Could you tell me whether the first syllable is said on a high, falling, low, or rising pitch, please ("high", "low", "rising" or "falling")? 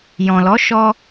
low